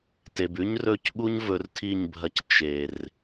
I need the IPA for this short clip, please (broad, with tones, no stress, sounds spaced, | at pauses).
t e˨ b ʉ˦ ɲ r ɵ˦˨ c ɠ u˦ ɲ v ɵ˨˦ r tʰ i˦˨ ɲ bʱ ɐ˧ c t͡ʃ e˨ r